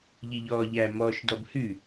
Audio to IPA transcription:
ʎ i ʎ ɔː ʎ æ m ɔː ʃ d ɔ b h ʉ

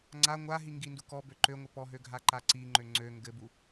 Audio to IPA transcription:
ŋ͡ǀ a ŋʷ a ɦ i ŋ ɡ i n d u k ɔ b ø ǃ ø ŋʷ ɘ p ɔ ɦ ø ɡʱ a ǃ a ǀ i ŋ͡ǃ ø ŋ͡ǀ ø ŋ ɡ ɘ b u

